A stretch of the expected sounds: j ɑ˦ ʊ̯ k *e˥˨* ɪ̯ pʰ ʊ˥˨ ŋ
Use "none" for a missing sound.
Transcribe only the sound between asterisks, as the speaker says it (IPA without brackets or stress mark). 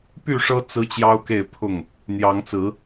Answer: e˥˨